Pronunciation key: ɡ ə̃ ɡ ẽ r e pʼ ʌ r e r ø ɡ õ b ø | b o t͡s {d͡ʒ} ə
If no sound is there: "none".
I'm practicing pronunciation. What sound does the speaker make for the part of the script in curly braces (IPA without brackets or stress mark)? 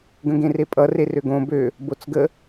ɡ